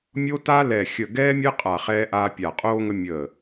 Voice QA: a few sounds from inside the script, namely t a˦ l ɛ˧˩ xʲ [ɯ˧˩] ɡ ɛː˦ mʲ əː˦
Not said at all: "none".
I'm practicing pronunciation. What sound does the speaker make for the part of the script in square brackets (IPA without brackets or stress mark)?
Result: ə˧˩